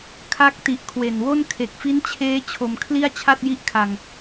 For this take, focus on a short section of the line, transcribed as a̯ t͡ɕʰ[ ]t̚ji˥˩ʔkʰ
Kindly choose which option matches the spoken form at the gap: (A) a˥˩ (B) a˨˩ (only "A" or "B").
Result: A